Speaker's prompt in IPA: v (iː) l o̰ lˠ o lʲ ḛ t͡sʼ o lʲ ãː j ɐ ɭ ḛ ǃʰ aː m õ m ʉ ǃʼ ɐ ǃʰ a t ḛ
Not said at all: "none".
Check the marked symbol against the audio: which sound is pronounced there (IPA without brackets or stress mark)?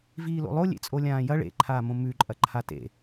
iː